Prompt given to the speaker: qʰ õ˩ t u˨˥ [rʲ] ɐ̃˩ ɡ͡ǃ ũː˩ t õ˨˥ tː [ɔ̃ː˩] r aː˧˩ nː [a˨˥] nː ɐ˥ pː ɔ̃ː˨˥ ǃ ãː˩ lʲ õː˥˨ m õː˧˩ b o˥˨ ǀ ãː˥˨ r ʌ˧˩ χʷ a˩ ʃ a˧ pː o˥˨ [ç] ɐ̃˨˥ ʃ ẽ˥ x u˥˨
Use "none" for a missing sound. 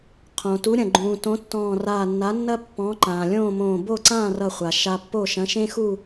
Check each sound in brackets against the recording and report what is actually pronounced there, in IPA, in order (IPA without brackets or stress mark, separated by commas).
ɾʲ, ɔ̃ː˧˩, a˨˥, ʃ